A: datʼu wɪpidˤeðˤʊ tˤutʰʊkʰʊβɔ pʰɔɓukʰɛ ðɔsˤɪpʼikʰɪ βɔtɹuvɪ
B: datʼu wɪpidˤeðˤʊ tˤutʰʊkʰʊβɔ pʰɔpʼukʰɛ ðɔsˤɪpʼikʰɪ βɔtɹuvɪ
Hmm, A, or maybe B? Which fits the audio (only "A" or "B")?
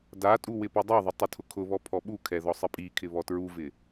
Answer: A